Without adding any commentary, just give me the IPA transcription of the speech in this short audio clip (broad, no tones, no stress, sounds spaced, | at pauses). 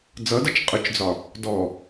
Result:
d͡z ʌ d ʌ t͡ʃ qʼ ʊ t͡ʃ d͡z ɒ | d ɔ